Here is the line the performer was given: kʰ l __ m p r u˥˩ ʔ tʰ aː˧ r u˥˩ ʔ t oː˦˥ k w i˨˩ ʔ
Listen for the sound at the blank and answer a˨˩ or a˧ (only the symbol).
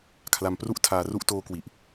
a˧